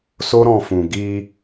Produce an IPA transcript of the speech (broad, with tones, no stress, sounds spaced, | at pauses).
s o˦ ɾ ɔ̃˧ f ũ˨ ɡ i˧